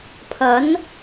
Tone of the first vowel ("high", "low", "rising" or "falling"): rising